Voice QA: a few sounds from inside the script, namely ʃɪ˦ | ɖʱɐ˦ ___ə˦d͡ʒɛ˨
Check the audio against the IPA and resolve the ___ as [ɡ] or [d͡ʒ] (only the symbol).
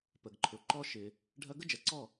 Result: ɡ